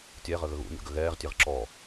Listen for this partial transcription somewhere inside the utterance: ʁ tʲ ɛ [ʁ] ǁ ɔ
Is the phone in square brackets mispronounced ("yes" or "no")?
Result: no